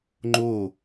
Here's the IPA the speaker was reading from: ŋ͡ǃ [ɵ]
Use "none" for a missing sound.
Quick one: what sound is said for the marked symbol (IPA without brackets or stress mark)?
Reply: o